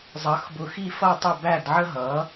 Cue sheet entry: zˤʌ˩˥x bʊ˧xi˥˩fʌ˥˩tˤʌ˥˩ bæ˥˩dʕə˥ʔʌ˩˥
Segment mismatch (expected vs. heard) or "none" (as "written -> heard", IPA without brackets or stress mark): ʔ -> ɦ